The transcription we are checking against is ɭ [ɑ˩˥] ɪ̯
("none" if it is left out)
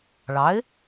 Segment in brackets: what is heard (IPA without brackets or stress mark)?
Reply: ɑ˩˥